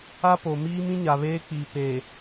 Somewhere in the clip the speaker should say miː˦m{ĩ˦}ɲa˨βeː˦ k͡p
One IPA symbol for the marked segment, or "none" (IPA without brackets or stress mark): ĩ˦